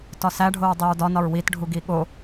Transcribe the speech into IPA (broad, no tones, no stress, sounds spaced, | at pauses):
t ɒ s æ ɖʱ o ɹ dˤ i ɹ d ɒ n ɒ ɹ w i t ɖʱ u ɡ i ɠ o